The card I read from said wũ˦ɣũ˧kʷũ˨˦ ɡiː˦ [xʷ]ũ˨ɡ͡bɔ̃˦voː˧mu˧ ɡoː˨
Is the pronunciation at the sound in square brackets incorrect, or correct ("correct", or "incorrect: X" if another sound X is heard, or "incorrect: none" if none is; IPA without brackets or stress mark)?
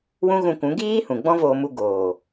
incorrect: h